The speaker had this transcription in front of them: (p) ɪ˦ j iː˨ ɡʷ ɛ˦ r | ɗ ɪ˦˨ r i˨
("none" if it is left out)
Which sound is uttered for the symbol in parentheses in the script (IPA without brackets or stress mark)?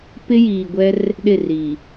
p